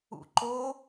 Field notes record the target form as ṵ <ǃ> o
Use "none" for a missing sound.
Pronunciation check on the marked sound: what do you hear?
ǃ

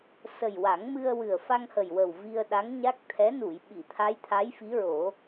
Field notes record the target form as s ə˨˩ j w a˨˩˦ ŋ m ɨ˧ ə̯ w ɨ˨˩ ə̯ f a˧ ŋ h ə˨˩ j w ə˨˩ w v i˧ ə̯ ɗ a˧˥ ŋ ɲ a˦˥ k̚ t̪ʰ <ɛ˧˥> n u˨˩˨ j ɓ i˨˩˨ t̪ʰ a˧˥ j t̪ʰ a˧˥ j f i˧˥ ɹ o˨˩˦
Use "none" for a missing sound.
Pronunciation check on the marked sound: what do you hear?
ɛ˧˥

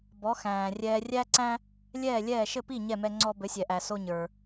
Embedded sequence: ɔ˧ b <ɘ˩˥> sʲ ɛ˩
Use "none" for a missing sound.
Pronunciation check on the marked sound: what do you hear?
ɘ˩˥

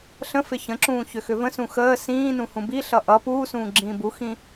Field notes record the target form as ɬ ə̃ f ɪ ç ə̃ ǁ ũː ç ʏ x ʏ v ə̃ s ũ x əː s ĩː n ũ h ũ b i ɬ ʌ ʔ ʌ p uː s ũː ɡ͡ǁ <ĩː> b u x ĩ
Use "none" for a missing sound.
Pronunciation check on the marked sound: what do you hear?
ĩː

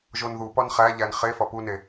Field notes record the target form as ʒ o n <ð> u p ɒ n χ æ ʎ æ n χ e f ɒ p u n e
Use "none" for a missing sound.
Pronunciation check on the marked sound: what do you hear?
ð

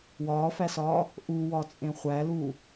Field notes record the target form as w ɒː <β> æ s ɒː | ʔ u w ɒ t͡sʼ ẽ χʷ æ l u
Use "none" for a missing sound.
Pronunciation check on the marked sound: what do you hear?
f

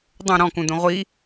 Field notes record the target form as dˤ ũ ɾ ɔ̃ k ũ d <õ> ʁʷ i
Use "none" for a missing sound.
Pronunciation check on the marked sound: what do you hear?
ũ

